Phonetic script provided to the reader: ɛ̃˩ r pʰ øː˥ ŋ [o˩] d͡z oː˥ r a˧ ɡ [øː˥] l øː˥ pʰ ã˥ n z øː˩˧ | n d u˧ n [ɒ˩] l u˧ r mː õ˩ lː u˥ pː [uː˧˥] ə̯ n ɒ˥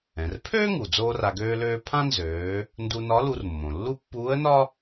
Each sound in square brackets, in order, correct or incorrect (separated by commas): incorrect, correct, incorrect, correct